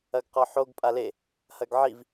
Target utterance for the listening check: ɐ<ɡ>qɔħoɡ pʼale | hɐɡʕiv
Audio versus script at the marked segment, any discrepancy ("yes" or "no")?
no